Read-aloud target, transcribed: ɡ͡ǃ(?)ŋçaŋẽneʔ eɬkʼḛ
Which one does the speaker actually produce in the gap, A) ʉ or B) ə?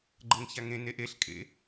B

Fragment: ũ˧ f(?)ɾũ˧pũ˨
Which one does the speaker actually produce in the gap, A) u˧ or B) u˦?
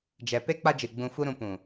B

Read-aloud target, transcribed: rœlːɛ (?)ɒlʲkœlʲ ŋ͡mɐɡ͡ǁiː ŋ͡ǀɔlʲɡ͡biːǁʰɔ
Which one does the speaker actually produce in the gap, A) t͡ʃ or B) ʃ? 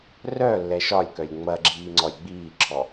B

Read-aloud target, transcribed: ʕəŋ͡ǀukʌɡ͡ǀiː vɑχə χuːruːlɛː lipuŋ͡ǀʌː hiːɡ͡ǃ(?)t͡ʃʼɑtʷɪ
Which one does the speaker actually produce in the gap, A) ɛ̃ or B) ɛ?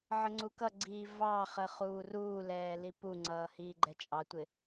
B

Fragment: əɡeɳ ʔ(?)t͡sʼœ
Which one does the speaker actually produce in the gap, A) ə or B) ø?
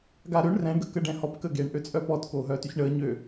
B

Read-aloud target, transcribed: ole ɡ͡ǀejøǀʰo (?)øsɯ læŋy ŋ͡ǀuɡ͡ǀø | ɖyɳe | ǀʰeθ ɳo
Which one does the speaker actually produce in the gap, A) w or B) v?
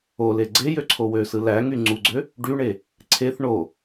A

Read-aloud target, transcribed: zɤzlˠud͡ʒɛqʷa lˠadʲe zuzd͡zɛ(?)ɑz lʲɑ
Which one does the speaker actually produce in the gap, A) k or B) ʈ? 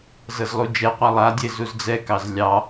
A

